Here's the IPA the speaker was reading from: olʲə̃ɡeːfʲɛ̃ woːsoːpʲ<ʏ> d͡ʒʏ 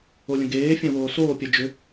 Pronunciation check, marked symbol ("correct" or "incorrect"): incorrect